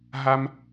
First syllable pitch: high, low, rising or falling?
high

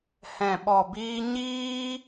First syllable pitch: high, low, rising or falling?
low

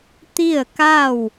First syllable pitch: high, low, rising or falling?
falling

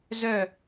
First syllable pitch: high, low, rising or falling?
falling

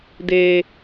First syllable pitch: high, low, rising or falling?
low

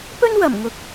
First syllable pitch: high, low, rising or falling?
high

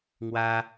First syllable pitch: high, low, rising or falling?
high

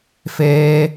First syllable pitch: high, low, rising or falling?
high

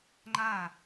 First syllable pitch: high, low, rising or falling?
falling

